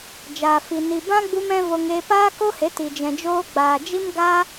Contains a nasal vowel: yes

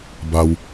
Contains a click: no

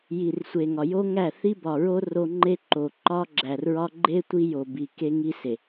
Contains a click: yes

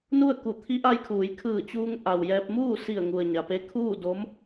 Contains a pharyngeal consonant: no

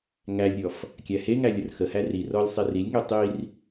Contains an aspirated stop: no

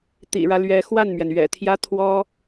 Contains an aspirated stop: yes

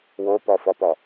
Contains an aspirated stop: no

